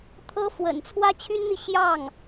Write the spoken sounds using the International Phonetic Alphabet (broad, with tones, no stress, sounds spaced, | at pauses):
t̪ʰ ɤ˥ f w ə̰˨˩ n t͡sʰ w ä˥ t͡ɕʰ y˥ n n̪ i˨ ɕ j ɑ˥˩ ŋ